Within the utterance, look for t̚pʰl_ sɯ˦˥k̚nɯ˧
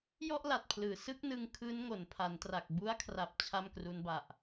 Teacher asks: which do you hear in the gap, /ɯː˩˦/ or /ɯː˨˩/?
ɯː˩˦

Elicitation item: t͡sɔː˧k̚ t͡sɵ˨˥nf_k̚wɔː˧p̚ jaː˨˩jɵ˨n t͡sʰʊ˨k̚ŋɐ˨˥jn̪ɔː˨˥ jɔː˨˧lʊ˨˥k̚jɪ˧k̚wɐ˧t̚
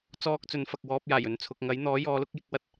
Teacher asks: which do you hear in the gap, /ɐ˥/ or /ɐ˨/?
ɐ˨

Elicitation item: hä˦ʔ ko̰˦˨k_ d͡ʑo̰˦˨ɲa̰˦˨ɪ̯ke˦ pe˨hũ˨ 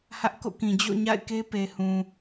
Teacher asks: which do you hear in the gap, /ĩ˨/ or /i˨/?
ĩ˨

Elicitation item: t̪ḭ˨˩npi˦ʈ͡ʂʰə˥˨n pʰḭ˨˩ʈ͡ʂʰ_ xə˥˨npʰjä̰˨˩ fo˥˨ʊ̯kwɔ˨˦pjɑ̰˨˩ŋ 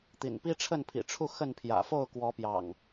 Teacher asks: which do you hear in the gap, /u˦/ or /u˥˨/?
u˥˨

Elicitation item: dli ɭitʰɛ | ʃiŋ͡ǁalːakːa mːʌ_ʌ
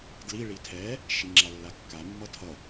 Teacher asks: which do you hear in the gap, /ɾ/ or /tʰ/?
tʰ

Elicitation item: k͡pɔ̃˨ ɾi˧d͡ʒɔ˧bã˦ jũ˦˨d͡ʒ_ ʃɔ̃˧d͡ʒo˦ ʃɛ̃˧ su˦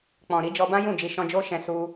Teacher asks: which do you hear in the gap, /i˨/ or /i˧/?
i˧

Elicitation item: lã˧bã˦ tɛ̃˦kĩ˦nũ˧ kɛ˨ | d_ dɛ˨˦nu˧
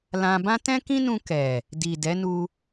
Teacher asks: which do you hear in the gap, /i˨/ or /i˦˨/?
i˨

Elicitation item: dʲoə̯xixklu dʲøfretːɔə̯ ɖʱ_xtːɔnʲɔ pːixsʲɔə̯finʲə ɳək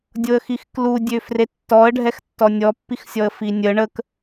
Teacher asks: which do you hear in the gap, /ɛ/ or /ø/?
ɛ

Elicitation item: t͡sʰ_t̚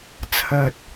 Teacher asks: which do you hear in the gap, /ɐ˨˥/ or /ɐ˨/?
ɐ˨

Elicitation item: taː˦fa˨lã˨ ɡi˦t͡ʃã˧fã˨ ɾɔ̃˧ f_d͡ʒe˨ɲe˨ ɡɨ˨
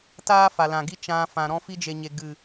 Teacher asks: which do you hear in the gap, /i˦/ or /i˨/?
i˦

